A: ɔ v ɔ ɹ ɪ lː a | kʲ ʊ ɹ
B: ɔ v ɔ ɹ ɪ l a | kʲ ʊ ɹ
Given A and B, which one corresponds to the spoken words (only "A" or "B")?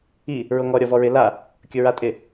B